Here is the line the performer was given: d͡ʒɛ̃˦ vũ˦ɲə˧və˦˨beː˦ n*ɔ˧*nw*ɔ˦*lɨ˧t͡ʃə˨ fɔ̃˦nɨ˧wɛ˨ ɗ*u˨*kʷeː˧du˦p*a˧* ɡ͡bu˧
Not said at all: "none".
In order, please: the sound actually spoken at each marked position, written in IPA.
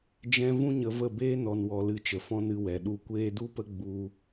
ɔ˧, ɔ˧, u˨, ə˧

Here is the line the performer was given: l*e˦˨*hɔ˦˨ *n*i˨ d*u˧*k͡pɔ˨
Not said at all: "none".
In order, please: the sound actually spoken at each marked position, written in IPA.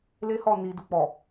e˦, n, u˧

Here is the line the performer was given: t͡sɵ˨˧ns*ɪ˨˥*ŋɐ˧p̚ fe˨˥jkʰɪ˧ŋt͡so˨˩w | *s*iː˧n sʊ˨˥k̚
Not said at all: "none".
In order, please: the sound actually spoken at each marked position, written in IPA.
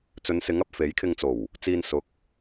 ɪ˨˥, t͡s

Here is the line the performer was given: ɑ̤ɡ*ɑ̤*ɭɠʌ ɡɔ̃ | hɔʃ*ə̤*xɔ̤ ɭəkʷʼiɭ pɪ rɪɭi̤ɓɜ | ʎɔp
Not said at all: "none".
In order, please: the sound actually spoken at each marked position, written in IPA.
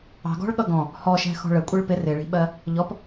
ɔ̤, ɛ̤

